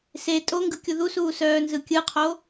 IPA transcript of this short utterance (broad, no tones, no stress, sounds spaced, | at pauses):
s e tʼ o ŋ ɡ ɯ kʲ u ð u s uː s œː n z ɯ kʲ ɯ qʰ o